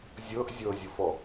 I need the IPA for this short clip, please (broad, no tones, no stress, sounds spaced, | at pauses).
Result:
zʲ ɤ ʔ zʲ ɤ zʲ ʊ f ɔ